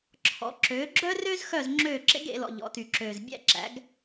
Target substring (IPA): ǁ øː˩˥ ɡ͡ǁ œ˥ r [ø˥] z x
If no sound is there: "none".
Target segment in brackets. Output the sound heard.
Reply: ø˥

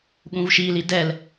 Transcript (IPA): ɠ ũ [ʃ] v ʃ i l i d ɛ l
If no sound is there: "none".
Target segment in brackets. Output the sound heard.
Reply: none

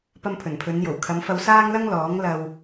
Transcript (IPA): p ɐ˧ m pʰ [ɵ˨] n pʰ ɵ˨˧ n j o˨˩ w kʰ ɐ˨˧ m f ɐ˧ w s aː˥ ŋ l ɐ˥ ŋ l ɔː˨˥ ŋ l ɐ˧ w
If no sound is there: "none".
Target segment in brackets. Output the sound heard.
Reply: ɵ˨˩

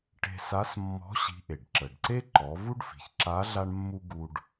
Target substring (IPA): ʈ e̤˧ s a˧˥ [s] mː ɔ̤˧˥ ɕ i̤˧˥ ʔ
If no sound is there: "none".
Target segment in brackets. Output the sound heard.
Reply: s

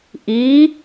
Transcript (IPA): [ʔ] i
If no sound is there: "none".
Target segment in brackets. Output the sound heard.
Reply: ʔ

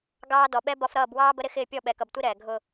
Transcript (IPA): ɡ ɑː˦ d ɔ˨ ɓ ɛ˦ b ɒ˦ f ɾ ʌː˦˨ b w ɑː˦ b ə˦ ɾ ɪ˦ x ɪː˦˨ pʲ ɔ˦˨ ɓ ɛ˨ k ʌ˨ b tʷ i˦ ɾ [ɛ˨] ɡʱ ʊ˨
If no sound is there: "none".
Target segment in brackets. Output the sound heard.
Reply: ɛː˨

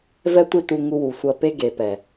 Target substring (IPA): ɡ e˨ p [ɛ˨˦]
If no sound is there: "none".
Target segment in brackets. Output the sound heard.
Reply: ɛ˨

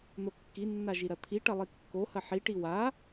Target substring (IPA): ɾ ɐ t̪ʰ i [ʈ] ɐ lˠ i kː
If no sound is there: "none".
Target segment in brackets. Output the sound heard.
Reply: ʈ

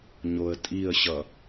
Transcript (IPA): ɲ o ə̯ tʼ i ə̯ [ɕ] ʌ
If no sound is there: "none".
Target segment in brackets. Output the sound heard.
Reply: ɕ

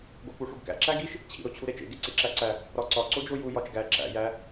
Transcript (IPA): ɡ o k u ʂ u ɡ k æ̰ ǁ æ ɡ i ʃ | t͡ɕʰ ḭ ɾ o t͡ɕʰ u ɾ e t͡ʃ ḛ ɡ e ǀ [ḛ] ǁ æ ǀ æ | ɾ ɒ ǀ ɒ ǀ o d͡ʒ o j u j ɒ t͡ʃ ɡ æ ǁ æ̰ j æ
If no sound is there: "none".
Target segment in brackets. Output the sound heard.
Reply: ḛ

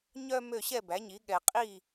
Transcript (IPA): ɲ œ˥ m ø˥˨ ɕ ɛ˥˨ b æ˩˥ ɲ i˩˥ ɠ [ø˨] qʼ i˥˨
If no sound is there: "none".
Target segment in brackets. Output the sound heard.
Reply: ɛ˨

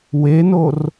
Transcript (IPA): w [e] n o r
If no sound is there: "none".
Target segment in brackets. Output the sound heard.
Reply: e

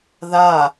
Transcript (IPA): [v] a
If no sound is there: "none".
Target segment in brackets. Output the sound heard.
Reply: ð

